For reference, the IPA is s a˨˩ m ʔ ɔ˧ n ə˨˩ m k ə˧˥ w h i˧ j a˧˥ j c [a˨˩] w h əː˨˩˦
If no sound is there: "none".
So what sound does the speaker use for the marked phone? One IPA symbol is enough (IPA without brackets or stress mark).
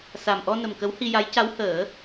a˧˥